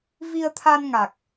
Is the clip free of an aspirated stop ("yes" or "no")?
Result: no